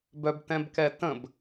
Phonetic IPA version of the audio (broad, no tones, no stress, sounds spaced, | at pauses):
b œ b t ɛ̃ b k ɛ t ə̃ b